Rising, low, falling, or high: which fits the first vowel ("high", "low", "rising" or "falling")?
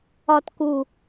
high